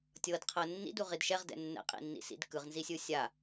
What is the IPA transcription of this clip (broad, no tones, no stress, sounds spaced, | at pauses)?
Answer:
tʲ ɤ d qʰ ɤ nː ḭ d u ʁ i d ʃ ɛ ʁ d ɛ̰ nː ɛ̰ qʼ ḭ nː ḭ s ḭ d k ɯ ʁ n z i sʲ ɯ sʲ a